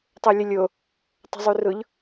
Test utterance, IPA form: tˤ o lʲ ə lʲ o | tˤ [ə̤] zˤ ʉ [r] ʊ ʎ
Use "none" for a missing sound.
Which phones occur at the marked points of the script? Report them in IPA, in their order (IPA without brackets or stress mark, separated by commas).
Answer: ə̤, r